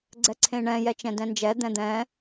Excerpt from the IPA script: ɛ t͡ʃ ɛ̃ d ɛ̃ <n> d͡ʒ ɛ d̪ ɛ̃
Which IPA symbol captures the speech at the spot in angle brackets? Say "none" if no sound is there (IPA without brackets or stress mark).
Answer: n